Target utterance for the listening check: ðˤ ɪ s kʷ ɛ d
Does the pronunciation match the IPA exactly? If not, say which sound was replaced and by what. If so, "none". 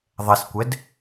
ɪ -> ɛ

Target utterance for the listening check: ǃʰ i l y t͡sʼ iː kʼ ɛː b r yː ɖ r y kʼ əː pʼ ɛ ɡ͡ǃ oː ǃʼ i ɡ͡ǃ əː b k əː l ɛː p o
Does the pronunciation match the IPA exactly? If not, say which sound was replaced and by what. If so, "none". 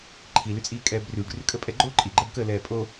p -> pʼ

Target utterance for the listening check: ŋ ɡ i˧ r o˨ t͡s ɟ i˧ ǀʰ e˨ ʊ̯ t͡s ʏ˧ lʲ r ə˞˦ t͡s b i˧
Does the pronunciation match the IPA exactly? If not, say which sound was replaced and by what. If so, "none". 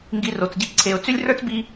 ʏ˧ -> ʏ˦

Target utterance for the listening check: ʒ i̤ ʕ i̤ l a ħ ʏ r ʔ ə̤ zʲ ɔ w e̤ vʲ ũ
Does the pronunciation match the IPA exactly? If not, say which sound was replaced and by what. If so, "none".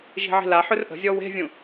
none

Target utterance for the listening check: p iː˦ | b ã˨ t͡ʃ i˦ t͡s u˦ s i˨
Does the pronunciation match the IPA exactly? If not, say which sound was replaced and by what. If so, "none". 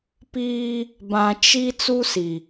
none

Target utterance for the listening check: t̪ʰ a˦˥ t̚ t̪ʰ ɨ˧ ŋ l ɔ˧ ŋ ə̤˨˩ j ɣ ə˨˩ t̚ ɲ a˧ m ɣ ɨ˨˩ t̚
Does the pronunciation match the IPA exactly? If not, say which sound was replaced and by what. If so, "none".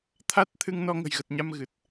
l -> n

